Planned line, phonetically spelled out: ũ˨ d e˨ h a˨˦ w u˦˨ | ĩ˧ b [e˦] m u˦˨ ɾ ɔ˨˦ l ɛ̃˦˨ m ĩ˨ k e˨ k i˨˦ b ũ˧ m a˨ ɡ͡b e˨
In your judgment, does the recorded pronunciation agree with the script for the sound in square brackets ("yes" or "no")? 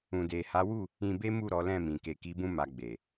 yes